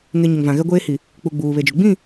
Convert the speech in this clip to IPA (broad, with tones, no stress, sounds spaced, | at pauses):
ŋ e˨ ɲ ɪ˨ ŋ v ã˨ ɣ ɛ˦ ɡʷ eː˦ h i˨ | k͡p u˨ ɡ͡b uː˨ β e˨ d͡ʒ ʊ˨ ɡ͡b ĩ˦˨